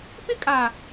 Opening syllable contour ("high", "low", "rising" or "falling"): high